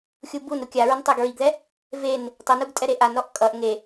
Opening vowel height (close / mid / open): close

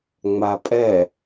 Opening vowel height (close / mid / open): open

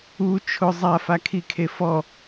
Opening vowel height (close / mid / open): close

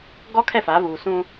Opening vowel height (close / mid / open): mid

